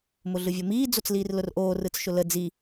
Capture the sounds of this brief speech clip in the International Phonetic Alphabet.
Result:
mʊɮɯvʲomiː d͡zot͡sliːrlʊrʔoː rɯt͡sʃʊlə d͡zi

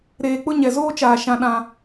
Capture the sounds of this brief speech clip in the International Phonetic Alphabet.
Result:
ɾeː˨k͡pʊ˦ɲɛ˨ zoː˦t͡ʃaː˨ ʃã˨ ɗã˦

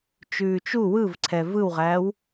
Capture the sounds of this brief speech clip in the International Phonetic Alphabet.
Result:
t͡ʃʉːt͡ʃu wɯvǀʰɛ vɯwʁæːw

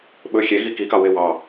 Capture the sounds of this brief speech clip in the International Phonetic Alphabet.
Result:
ɓɵ xʲeɣi kikɑ wewɑ

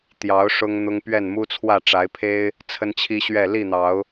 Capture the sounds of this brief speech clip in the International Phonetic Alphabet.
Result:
t̪jɑ˨˦ʊ̯ ʂʊ˦ŋn̪ʊ˦ŋ pɥɛ˥˨nmu˦t͡sʰwä˥˨ ʈ͡ʂa˨˦ɪ̯pʰe˦ɪ̯ | t͡sʰə˦nt͡ɕʰi˦ɕɥɛ˥˨ li˥˨n̪ɑ˨˦ʊ̯

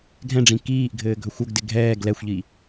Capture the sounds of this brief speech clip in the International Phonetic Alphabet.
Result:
ɡʱɛ̃ɖ͡ʐĩ kiːʔɡʱɘː ɡʱɵxʷɵɡdɪ ɡʱɛːɡ lɛxʷʎi

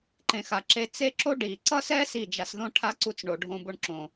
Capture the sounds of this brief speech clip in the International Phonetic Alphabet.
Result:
ǃẽ˨xa˨ǁe˧ t͡se˦ǁo˦ ɖi˨ ǀʌ˦sɛ˦ si˦˨d͡ʒa˧sðõ˦ ʈʰa˦ǀu˧t͡sɳo˨ ɖʱõ˧bo˧ɳǁõ˨

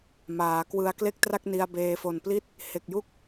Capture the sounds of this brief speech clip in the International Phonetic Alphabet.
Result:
maː˩˦kwɯ˧a̯ kle˥˩k̚tra˥˩k̚ ni˧a̯beː˧fo˨˩npli˥˩t̚ | he˨˩k̚ju˦˥k̚

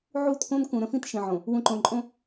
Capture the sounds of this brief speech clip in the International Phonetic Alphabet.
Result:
ʕu˦˨tkõ˦n kũ˨ ɾə̃˦fĩ˦t ʃĩ˨ʕõ˨ | wũ˨ǃõ˨ǃʼõ˦

